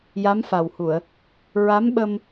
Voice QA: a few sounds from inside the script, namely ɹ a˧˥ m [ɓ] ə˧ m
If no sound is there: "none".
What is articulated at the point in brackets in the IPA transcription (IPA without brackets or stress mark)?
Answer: ɓ